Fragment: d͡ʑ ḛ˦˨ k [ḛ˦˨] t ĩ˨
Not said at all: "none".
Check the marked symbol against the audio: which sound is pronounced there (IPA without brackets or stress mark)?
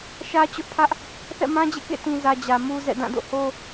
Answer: ḛ˦˨